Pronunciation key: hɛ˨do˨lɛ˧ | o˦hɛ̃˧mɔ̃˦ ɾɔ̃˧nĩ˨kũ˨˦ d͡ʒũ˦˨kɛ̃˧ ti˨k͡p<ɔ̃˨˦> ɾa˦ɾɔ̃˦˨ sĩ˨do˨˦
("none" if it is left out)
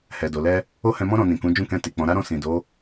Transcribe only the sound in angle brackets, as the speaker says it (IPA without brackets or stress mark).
ɔ̃˨˦